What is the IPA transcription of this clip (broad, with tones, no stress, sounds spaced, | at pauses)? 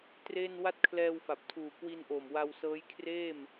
t r e˥˩ n w a˥˩ t̚ kʰ l ɛː˧ w f a˨˩ p̚ tʰ uː˨˩ k w i˧ n ʔ o˨˩ m w a˧ w s ɤː˦˥ j kʰ r eː˥˩ m